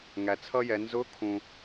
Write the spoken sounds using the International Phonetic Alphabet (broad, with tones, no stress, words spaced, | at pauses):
ŋæ˩t͡sʰʌ˥jɛ˩˧ nzʊ˧˥kʰũ˩